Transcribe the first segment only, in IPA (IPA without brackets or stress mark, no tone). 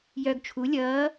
j